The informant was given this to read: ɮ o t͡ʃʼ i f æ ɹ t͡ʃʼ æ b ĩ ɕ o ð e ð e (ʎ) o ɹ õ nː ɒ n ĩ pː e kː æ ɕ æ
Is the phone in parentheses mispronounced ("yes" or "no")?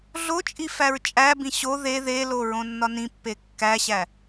yes